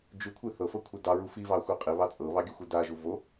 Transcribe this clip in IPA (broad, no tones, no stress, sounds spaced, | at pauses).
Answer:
d͡ʒ ʉ kʷʰ i θ ɤ f ɤ kʷʰ e d ɑ ɹ u f i v ɑ xʷ i qʼ i β ɑ t͡sʼ ɤ β ɑ ɡʲ ʉ xʷ e d a ʒ u v o